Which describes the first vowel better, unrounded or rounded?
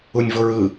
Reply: rounded